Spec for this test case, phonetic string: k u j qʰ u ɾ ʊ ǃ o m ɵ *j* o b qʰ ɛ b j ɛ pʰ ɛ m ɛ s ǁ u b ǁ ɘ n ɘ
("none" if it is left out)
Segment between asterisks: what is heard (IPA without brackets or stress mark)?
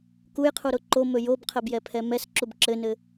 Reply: j